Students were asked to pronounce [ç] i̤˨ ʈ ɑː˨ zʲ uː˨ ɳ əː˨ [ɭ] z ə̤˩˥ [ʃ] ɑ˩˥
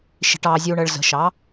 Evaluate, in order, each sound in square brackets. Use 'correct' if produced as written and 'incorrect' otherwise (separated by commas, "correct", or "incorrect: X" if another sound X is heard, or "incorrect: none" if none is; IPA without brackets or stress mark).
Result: incorrect: ʃ, correct, correct